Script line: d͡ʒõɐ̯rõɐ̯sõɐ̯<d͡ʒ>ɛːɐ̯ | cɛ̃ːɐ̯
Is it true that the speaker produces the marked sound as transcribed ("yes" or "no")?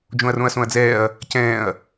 no